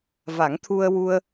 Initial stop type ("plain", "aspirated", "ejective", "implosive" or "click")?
aspirated